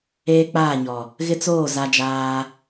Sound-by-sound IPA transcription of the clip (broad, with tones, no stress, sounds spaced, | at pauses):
eː˦ k͡p aː˦˨ ɲ ɔ˨ | ɣ ɪ˦ t͡s oː˦˨ z a˦ d͡ʒ aː˦